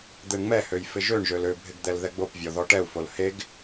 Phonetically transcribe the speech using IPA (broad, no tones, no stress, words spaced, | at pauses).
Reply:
d̪eɳŋ͡mɛhøj fɪʒøɳʒøl øbʱɪɡd̪ɛl ðɛɡ͡bopvʲɔðɔ ʈɛu̯fol heɡ